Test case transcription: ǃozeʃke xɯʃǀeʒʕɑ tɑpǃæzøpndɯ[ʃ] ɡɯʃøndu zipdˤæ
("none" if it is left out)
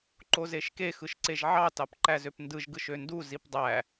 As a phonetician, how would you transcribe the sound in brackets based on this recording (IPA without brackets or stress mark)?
ʒ